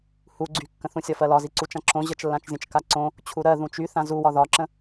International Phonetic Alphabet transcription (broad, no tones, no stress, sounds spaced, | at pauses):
h u ɡ͡ǀ y kː ə̃ θ ũ sʲ ɒ f ɜ l ɒ z i ǀ u t͡ʃ ã ǁ õ ʑ ə t͡ʃ lː ã t͡ʃ zʲ ə̃ t͡ʃ k a ǀ õ | t͡ɕʰ u ɾ ɜ ð ũ t͡ʃ y θ ã z u w ɒ ð ɒ ǁ ə̃